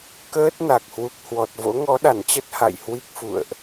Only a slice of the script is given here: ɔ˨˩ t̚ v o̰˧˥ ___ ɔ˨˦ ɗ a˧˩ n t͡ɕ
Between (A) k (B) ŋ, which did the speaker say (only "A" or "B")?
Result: B